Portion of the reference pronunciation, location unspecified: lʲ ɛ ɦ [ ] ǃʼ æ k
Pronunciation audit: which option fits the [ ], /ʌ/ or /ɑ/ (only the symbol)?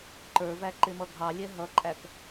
ʌ